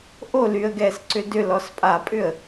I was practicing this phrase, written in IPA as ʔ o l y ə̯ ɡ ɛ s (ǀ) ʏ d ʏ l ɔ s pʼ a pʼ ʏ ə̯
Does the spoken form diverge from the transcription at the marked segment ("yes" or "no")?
no